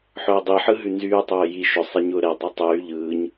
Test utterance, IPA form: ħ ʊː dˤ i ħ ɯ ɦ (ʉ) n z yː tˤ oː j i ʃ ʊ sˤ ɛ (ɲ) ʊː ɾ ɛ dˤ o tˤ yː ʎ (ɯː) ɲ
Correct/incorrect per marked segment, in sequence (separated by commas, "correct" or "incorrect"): correct, correct, correct